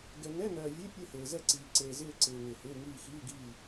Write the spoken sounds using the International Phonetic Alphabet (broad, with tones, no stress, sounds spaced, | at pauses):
ɡ ɛ˨ ŋ ɛ˧˥˧ n ɜː˨ vʲ e˧˥˧ pʲ e˥˨ h eː˨ z ɛ˥˨ ǀ iː˨ ǀ eː˨ z ɪː˥˨ ǀ ɪː˨ ŋ ɪː˨ h ɪː˧˥˧ ŋ iː˥˨ x iː˧˥˧ ɡ iː˥˨